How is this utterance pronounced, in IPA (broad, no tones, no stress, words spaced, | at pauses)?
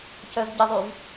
cœvɟəðˤyv